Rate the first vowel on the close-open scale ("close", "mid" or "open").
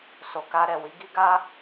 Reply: mid